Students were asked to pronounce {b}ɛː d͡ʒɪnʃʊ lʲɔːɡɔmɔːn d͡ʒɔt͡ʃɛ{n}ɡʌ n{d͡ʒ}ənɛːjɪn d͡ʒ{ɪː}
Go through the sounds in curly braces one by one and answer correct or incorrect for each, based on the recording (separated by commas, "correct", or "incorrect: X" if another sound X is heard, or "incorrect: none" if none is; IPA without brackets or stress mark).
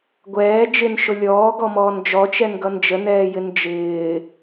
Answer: incorrect: ɡʷ, correct, correct, correct